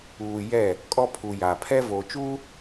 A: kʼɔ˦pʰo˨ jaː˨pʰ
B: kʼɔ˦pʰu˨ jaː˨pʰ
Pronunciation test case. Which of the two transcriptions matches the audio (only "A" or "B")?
B